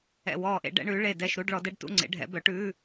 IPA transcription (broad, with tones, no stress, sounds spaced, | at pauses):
ɛ̰˦˨ w ɔː˦˨ ʔ ḛ˧˥ ɖ ɛ̰˧˥ ɳ ʉ˩˥ ɭ e˦˨ d ɛ˦˨ ʃ ɾ u˧˥˧ ɖ ɭ ɔ˩˥ d ɛ˧˥˧ ɖ t ṵ˧˥˧ ŋ͡ǀ ḛ˩˥ ɖʱ ɛ̰˩˥ b œ˩˥ ʈ ʉː˧˥˧